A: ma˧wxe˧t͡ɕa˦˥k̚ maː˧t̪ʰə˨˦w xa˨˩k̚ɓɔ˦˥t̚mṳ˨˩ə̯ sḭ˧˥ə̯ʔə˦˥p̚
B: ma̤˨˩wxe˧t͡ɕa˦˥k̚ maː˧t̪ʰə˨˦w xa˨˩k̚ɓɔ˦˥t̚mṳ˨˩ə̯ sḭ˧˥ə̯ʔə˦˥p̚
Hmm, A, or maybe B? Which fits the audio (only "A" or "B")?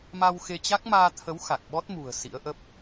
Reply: A